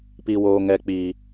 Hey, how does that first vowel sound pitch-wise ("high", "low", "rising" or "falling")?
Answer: high